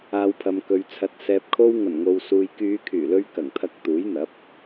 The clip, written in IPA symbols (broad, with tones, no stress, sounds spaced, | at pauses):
aː˨ w pʰ ɐ˨ m k ɵ˨ ɥ t͡sʰ ɐ˨ t̚ s ɛː˨ p̚ kʰ o˧ w ŋ ɐ˨˩ n ŋ o˨ w s uː˨ j k yː˨˧ kʰ yː˨˩ l ɵ˧ ɥ k ɐ˨˩ ŋ t̪ʰ ɐ˧ k̚ t̪ uː˨˥ j n̪ ɐ˨˥ p̚